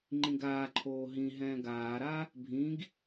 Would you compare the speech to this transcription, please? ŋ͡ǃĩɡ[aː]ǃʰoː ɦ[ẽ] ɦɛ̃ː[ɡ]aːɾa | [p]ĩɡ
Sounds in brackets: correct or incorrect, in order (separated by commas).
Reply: correct, incorrect, correct, incorrect